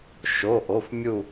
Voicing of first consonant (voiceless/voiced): voiceless